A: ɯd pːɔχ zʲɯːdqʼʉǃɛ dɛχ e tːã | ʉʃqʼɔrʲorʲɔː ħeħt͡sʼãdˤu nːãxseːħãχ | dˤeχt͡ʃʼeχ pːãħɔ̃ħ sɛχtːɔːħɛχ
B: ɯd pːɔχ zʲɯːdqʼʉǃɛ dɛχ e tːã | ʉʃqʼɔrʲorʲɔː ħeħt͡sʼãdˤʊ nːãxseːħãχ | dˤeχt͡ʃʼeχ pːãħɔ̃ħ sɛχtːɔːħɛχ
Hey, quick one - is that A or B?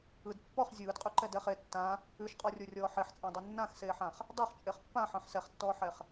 A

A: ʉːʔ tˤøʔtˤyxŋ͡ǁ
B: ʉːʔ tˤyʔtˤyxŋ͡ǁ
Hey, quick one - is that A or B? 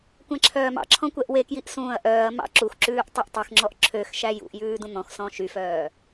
B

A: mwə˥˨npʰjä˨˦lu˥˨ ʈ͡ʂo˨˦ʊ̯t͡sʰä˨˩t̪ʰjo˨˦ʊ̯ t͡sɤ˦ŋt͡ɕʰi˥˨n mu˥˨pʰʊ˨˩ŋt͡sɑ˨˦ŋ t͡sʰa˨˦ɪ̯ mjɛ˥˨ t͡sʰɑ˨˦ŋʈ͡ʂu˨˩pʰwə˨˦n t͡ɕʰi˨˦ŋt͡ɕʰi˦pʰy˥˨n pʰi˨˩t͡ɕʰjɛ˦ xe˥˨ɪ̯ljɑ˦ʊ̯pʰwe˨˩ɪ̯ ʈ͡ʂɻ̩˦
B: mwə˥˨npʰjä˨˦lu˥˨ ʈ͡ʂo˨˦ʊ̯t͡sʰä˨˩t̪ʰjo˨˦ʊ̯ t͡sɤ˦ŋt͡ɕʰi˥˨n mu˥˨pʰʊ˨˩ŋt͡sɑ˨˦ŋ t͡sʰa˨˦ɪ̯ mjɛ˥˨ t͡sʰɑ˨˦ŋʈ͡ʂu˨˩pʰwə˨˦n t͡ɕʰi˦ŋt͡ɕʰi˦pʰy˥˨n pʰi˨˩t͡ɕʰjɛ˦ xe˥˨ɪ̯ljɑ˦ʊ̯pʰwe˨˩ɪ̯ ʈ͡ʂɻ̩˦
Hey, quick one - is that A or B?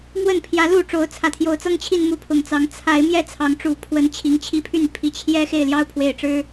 A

